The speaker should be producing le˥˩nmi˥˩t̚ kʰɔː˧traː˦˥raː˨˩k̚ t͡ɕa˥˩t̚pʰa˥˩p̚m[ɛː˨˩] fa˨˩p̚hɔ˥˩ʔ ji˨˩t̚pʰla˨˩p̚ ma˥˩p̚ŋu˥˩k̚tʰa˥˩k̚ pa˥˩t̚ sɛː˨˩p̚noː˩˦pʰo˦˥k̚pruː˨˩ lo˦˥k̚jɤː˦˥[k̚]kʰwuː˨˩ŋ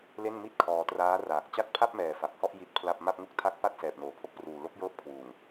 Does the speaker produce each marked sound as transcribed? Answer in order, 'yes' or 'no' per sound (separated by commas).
yes, no